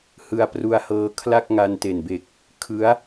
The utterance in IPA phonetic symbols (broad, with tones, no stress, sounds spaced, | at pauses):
h ɯ˧ a̯ p r u˧ a̯ h ɤː˧ kʰ l a˥˩ k̚ ŋ a˧ n t e˨˩ n b e˨˩ k̚ | kʰ ɯ˦˥ a̯